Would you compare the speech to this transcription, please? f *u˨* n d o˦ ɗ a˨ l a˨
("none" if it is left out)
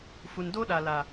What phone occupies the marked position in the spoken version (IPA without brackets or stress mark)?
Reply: u˨